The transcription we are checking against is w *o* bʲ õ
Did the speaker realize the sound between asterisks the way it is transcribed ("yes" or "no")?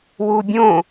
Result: no